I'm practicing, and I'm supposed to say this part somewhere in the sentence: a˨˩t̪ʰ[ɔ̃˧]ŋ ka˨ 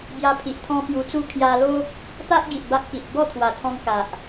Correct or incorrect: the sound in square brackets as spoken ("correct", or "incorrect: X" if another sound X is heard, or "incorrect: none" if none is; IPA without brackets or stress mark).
correct